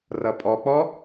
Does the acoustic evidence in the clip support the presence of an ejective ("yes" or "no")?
yes